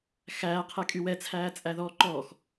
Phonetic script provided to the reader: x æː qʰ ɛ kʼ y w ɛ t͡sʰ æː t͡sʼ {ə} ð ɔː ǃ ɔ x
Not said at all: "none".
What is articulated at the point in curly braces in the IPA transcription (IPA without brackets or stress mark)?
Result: æ